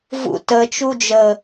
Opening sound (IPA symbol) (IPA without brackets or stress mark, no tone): v